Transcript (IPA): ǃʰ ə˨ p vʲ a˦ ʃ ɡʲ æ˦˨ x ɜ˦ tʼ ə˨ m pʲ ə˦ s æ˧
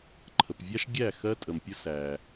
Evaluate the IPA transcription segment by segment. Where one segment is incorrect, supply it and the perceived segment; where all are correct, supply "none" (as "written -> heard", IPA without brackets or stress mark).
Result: none